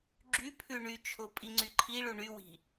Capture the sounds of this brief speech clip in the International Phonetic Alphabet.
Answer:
ɡ͡ǁypʰʉ ɳyt͡ʃʰo pʼiŋ͡ǀyǃʰiɭu ɳywi̤

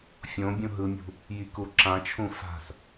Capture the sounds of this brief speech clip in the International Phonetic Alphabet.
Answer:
fʲõ bʲũɦɯmʲṳ | jikuǁãt͡ʃʰũ fa̤s

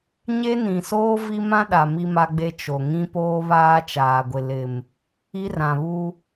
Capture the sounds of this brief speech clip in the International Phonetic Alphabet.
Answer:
ɲe˦nĩ˨soː˦ vi˦mã˦ɗa˨ mi˦ma˦ɡ͡be˦ t͡ʃo˨ŋĩ˦ poː˦βaː˦t͡ʃaː˨ɡʷɪ˨ lɪ˨m | i˦rã˨βu˦

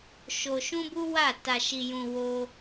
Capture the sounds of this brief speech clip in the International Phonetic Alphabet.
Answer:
ʃo˧ ʃũ˦bu˦wa˦˨ ta˧ʃi˧ jũ˧wo˦

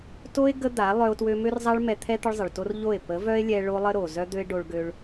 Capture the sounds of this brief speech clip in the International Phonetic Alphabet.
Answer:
to˦e̯ ɡə˦d̪a˨˦ lˠœ˦o̯twø˦ mø˦rzˤa˦ɭmɛ˧ t̪ʰɛ˦ t̪ə˦ɭzˤə˨ɭto˦r ʎo˦˨e̯ pə˨˦vœ˦e̯lʲɛ˧ ɭo˦lˠə˦ɾo˨ zœ˦d̪ø˦e̯ ɖo˧ɭ ɡø˧ɭ

